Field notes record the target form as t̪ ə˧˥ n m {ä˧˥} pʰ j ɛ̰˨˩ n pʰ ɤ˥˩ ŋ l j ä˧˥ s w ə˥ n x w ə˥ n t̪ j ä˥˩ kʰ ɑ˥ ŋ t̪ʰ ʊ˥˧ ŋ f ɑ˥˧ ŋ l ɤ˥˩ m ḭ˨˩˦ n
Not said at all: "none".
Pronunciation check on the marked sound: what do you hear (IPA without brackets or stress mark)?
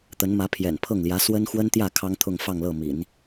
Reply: ä˧˥